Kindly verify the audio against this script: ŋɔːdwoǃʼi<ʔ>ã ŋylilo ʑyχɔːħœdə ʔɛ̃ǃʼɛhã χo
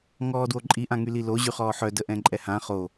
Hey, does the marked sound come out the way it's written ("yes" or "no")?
yes